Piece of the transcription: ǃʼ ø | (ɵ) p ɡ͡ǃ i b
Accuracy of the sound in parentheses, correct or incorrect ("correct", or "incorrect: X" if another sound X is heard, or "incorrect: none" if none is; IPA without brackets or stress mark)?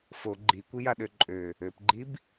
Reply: incorrect: ø